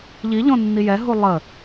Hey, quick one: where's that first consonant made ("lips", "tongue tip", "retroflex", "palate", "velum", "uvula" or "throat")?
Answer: palate